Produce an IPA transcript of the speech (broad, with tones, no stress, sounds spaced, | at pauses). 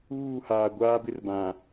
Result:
uː˦˨ h aː˨ ɡʷ aː˦ b ɪ˦ r b ã˨